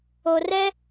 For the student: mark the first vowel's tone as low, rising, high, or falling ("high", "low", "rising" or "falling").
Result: low